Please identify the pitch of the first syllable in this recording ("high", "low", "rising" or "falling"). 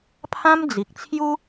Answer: high